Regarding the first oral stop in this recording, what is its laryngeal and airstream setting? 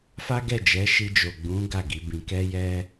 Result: plain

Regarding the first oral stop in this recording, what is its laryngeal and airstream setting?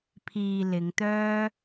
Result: aspirated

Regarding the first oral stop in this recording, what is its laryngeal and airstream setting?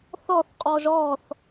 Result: ejective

